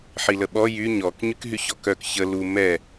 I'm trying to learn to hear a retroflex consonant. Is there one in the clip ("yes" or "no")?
no